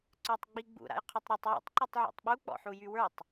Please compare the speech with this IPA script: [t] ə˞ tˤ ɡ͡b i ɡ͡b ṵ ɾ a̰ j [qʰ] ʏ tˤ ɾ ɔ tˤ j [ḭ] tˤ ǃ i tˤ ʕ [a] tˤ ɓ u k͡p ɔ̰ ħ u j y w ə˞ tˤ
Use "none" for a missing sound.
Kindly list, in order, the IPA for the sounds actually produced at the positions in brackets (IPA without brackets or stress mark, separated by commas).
ǀ, qʰ, ḭ, a̰